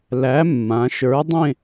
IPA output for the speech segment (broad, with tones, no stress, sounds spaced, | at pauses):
l æ˨˥ mː ã˩˧ ʃ ə˞˨˥ dˤ ẽ˥˧